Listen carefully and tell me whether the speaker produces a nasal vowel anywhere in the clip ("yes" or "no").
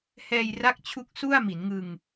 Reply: no